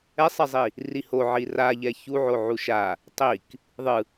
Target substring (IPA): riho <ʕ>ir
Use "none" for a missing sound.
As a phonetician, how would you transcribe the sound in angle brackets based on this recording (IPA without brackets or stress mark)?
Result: ʕ